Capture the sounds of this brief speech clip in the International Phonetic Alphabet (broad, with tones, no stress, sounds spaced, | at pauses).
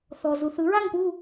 θ ɔ˨ z u˨ θ ɯ˨˥ ɹ a˥˧ ŋ p u˥˧